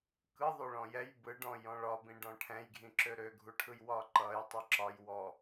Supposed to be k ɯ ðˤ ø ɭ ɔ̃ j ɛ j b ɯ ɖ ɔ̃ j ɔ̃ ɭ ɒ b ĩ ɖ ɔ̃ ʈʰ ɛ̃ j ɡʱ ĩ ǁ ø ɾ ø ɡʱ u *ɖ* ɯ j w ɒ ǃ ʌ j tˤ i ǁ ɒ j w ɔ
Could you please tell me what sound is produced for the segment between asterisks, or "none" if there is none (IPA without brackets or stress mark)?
ʈʰ